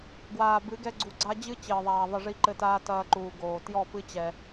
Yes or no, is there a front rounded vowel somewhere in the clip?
no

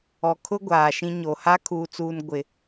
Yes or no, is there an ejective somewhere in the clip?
no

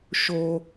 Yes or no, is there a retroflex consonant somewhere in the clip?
no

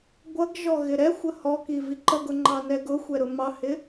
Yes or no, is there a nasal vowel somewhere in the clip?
no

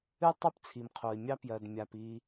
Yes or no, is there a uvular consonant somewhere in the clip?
yes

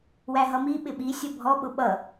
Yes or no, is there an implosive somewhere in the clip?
yes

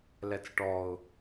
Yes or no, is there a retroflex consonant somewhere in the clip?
yes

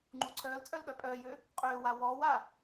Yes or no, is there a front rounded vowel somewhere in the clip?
yes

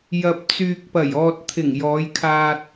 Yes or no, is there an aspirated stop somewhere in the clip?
yes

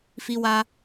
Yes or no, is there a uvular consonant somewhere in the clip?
no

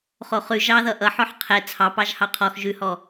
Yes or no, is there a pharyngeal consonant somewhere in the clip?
yes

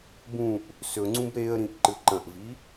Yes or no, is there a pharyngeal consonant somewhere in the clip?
no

